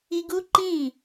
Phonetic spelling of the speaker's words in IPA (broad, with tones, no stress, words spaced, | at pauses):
i˧ɡu˦ǃĩ˦˨